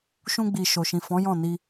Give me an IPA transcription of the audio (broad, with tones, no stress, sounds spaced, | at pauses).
ʃ ũ˧ ɡ͡b i˨ ʃ o˨ ʃ ĩ˨ f ɔ̃˨˦ j ɔ̃˦˨ n i˧